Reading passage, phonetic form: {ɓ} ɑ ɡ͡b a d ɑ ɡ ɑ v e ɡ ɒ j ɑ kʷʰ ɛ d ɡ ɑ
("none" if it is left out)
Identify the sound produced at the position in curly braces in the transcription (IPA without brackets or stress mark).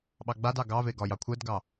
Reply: ɓ